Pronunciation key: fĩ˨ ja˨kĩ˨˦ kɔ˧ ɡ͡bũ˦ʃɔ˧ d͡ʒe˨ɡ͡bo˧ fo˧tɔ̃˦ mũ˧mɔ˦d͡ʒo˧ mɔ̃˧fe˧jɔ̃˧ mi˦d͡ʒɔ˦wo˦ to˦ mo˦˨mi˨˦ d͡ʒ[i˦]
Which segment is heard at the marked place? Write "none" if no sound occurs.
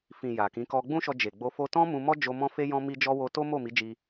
i˦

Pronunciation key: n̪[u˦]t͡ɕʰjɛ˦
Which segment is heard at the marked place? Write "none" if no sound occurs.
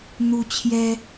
u˦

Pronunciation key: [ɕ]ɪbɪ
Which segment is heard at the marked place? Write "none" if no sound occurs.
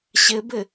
ɕ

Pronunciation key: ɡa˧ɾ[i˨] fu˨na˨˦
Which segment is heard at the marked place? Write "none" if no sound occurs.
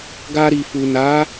i˨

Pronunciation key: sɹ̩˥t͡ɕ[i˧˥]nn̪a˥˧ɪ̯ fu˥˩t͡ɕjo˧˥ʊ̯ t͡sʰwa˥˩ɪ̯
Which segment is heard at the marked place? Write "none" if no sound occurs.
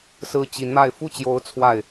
i˧˥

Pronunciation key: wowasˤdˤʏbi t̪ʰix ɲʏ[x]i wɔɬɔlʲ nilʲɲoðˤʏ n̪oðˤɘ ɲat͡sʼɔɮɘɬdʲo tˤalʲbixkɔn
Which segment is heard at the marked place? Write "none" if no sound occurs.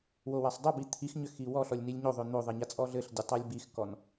x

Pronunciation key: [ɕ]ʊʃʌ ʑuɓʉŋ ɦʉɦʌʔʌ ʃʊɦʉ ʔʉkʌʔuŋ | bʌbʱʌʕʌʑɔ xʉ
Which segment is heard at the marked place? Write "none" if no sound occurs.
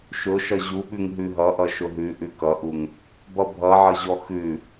ʃ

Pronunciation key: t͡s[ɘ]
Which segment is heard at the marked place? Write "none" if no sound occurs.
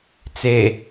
e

